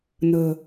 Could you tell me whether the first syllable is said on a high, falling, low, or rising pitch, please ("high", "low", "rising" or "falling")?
low